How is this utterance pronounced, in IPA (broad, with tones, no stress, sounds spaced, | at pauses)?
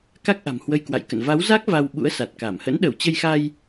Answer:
k a˦˥ k̚ ʔ a̤˨˩ m h w ə˧ j k w a̰˧˨ j k ə̰˧˨ n v a˨˦ w z a˦˥ k̚ v a˧ w ɓ ṵ˧˥ ə̯ s a˨˩ t̚ k a˧˩ m h ə̰˧˥ n ɗ ə˧˩ w t͡ɕ ə˧ j x a˧ j